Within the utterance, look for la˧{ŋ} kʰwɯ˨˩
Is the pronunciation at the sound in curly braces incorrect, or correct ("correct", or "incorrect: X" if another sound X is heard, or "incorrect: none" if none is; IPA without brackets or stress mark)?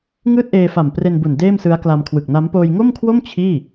incorrect: m